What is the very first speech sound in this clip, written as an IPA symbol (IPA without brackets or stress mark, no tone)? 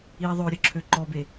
i